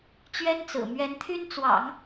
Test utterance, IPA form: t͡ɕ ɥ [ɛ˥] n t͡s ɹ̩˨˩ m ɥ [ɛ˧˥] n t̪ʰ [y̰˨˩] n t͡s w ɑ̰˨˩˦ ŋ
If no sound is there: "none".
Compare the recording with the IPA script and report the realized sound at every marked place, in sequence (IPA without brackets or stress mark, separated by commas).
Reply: ɛ˥, ɛ˧˥, y˥